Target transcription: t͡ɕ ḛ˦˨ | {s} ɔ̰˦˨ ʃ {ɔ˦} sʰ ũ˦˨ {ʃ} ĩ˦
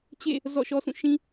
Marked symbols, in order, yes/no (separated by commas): no, yes, yes